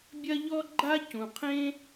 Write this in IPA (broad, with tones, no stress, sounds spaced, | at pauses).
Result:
bʲ ɐ˦ ʎ ɔ˦ ɡ͡ǃ a˦ c ũ˩ qʰ ẽ˦